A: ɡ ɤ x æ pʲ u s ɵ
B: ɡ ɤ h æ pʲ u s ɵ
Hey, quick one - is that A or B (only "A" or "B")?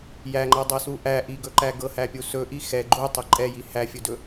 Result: B